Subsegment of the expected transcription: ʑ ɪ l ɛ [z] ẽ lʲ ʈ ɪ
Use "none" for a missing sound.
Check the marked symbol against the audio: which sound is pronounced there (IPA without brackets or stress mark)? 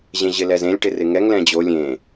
z